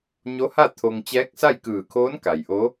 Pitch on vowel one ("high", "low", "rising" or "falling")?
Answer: rising